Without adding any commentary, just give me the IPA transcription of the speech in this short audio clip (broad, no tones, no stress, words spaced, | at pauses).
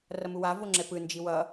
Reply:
rʌmuwa voŋ͡ǁɛpɯ nd͡ʒiwʌ